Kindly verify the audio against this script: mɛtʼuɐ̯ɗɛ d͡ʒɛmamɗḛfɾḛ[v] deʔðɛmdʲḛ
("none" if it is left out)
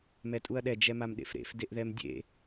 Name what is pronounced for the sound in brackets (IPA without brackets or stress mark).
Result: f